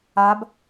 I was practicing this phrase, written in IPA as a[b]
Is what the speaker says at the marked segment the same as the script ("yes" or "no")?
yes